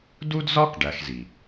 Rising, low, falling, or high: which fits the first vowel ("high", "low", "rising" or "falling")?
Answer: high